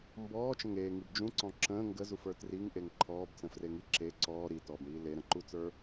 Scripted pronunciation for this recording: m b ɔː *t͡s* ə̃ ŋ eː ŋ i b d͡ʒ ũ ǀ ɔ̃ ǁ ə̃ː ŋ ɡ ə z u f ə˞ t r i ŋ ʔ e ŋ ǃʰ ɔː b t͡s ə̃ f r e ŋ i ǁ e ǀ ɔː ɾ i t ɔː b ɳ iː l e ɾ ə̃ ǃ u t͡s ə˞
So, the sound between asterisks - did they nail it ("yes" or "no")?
no